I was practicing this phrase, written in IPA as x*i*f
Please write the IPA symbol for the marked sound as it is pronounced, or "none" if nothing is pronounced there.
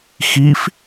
i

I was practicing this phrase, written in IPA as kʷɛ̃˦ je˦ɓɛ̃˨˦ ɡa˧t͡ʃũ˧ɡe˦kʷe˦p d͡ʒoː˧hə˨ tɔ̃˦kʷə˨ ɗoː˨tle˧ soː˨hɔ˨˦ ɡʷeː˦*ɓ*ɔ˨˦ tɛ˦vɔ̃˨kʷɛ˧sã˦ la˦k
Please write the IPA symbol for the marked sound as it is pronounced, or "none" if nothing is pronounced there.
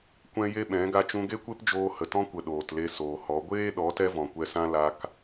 ɗ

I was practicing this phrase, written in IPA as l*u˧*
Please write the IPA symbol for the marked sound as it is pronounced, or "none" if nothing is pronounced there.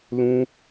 ũ˧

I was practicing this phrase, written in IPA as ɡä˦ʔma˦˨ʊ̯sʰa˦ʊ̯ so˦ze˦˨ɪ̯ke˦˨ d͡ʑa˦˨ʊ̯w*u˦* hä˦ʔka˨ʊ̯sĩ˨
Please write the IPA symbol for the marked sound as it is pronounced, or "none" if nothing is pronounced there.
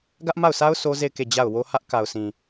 o˦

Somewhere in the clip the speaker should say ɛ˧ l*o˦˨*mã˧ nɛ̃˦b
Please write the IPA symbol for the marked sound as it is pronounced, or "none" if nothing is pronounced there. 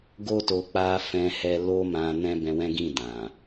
o˦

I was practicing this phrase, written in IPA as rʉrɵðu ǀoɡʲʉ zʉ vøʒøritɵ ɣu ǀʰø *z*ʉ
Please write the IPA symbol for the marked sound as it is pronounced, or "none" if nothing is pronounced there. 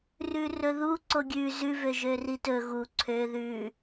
ð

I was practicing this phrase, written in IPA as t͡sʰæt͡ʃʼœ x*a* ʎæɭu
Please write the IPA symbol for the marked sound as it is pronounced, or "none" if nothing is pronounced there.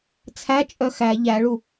æ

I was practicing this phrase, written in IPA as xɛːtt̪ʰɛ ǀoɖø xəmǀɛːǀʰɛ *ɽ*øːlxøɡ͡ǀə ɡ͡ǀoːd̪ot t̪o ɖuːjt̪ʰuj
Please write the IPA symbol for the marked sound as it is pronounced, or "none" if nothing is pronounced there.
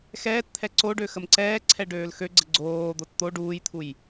ɖ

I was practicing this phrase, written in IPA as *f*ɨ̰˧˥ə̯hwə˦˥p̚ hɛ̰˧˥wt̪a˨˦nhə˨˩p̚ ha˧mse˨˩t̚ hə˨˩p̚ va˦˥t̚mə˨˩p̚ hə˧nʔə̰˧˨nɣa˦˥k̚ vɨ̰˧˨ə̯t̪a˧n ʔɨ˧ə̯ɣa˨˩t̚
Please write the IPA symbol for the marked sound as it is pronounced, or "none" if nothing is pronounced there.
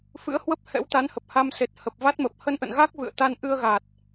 f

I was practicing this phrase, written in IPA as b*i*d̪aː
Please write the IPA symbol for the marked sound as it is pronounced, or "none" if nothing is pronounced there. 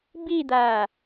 i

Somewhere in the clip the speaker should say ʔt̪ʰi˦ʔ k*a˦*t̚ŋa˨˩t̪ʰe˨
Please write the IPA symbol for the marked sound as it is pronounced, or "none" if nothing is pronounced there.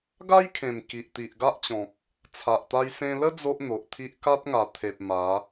a˦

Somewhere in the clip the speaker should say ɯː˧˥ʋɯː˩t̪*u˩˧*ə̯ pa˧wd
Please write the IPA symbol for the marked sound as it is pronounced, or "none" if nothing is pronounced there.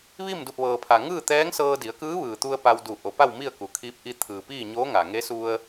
u˧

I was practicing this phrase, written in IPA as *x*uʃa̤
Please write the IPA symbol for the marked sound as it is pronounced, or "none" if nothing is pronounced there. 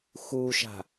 x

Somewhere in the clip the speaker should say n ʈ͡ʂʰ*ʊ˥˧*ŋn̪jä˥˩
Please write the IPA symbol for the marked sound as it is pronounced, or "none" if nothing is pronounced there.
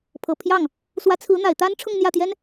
ʊ˥˧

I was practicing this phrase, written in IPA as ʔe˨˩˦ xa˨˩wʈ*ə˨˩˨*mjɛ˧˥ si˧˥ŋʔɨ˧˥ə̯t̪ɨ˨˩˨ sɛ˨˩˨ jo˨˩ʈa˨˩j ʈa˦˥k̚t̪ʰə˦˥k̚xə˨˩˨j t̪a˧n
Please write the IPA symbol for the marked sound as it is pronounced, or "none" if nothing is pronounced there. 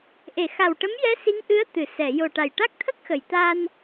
ə˧˥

